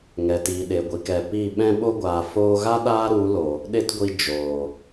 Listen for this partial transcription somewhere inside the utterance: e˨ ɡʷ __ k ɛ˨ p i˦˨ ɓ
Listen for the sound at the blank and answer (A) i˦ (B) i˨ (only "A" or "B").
B